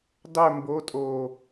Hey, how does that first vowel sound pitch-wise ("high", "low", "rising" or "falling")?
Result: falling